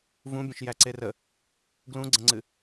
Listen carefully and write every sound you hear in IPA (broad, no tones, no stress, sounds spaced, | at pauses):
v ũ bʲ ə̃ ʃ j æ ǀ e r ə | ɡ l ũ ɡ͡ǀ ə̃ ŋ͡ǀ ɨ